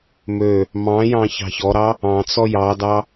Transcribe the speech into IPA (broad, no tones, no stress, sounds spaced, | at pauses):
m ø | m ɑ̃ j ɑ̃ ç ɑ̤ ç ɔ ɾ ɑ | ɑ̃ t͡s ɔ j ɑ d ɑ